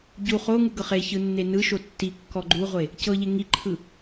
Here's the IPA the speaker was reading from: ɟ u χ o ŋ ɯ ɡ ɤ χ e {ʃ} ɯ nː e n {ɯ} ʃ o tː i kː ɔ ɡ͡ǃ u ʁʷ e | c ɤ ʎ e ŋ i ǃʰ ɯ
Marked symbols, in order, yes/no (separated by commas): no, yes